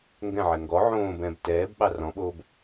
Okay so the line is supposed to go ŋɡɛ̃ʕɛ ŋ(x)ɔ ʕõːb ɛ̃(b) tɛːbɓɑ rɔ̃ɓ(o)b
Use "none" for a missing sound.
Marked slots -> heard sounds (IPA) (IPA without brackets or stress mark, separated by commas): ɡ, b, oː